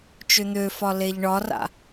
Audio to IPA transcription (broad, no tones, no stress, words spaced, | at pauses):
t͡ʃøn̪øfɒ leʎɳɒra̰